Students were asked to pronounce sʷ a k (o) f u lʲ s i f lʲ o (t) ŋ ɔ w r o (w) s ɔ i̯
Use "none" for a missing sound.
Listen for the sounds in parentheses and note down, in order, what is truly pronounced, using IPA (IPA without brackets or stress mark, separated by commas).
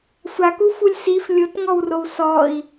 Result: u, t, w